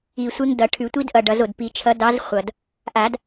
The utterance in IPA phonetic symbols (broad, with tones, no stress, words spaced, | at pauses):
i˨˩ sʷe˦˥ŋdʌ˨˩˦ ʈʰʉ˨˩˦tʷi˦˥d ʔʌ˨˩ ɖʌ˨˩˦zo˨˩d pi˨˩˦ t͡ʃʰʌ˨˥dɑ˨˥z χʷʌ˨˩d | ʔa˨˩˦d